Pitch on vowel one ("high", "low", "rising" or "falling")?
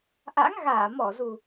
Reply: rising